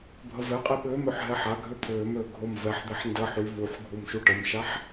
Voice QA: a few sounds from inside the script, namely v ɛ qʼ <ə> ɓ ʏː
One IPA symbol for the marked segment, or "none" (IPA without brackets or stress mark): ɛ